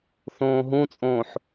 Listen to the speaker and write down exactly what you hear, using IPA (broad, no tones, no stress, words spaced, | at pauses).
θõːɦũt͡sʼõːħ